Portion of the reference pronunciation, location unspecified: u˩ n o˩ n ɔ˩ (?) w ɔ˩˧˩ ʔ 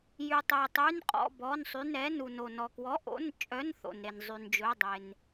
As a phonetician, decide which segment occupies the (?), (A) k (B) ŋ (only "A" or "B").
A